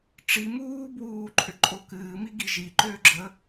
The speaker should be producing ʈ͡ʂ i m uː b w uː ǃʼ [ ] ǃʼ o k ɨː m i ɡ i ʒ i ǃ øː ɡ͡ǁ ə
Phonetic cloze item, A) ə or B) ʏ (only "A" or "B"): B